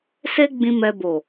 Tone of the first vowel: high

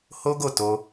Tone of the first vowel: high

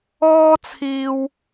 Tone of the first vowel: high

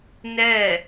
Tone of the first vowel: falling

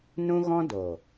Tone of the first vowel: high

